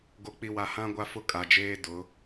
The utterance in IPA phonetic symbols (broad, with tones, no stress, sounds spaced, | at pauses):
ɡ o˨ k͡p i˨ w a˨ h ã˦ ɡʷ a˦ f ʊ˦ kʼ a˨ d͡ʒ eː˦ d ʊ˨˦